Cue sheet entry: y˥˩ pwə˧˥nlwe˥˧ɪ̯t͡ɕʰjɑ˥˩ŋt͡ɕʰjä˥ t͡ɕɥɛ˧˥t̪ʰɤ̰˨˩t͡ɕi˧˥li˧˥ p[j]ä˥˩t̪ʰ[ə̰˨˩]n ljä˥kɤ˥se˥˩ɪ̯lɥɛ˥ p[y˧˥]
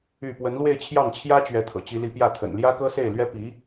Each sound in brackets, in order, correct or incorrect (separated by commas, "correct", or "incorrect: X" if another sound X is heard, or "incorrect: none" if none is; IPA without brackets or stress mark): correct, correct, incorrect: i˧˥